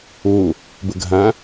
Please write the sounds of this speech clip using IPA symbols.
o | b ə ɡʱ ã

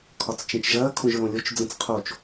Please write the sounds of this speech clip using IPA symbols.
kʰ ɒ t͡s t͡ʃ ẽ t͡ʃ ʒ ɐː kʰ õ ʒ ɹ õ lʲ o t͡ʃ d͡z ə̃ t͡s qʰ o t͡ʃ

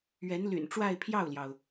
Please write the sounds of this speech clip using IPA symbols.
ɥ ɛ˧˥ n l y̰˨˩ n ʈ͡ʂ w a˥˧ ɪ̯ pʰ j ɑ˥˩ ʊ̯ l j ɑ˩ ʊ̯

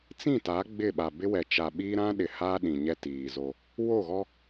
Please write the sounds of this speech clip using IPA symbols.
t͡s ĩ˦˨ t a˨˦ ɡ͡b ɪ˦˨ ɓ a˨ b ɪ˦ w ɛ˨ t͡ʃ a˨ ɓ iː˦ ɾ ã˦ ɗ ɪ˨ h aː˦ ɗ ĩ˨ ɲ ɛ˦ t iː˨ z o˦ | w o˦˨ ɣ ɔ˦

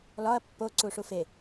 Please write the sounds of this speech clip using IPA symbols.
l ɒ ɐ̯ pː o ǀ u ʂ u f e

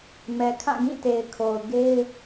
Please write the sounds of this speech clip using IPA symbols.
m ɛ˨ kʰ ã˦˨ ɡ ĩ˦˨ t e˨ ɪ̯ kʰ o˨ ʊ̯ ɡ e˦ ɪ̯

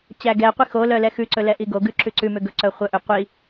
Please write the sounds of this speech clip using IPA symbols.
t͡ɕ æ ɡ ɛ qʷ i x o l œ l ɛ x ʉ ǀ ɵ l ɛ ʔ i ɡ o ɡ ʉ ǁ ʉ ǀ ʉ m ø ɡ ɵ ǀ œ χʷ œ ʔ ø qʷ i

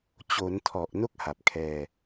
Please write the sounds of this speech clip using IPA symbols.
t͡ɕ o˩˦ n tʰ ɔ˨˩ ʔ n o˥˩ k̚ h a˨˩ p̚ kʰ ɛː˧

